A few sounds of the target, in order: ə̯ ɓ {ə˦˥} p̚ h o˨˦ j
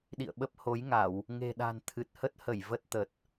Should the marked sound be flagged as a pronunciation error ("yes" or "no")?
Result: no